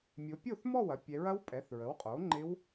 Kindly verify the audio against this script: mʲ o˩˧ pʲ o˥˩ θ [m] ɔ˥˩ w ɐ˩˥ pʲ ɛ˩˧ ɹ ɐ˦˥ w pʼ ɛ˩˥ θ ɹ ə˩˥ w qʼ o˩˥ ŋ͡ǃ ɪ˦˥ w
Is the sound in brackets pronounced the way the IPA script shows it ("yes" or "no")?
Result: yes